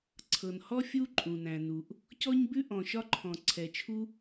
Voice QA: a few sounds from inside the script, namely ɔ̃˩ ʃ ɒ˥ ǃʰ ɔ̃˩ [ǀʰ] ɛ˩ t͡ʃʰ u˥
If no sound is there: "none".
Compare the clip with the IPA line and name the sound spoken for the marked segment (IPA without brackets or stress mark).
ǀʰ